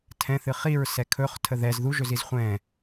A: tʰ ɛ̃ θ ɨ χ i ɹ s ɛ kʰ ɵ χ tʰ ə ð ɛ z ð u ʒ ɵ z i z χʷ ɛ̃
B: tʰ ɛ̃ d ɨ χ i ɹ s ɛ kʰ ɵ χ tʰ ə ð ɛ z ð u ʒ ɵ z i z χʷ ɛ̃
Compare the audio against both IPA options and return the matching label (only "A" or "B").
A